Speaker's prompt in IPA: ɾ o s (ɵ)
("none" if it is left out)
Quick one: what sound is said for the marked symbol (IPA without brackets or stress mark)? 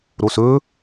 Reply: ɵ